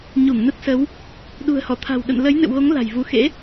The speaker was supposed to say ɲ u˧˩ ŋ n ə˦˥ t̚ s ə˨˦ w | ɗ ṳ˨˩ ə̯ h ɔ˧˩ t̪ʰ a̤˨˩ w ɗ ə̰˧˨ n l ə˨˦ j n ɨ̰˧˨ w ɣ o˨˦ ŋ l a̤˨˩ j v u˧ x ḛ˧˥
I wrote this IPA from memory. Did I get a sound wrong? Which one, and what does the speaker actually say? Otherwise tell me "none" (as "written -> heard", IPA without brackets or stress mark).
none